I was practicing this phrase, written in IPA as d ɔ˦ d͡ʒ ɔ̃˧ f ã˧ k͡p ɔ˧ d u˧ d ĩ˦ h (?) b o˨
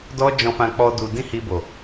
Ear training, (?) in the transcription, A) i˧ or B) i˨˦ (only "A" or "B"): A